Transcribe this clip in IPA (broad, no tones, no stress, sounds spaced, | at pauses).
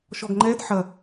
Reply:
ʃ ɔ ɡ ŋ͡ǃ ɛ d ħ ɐ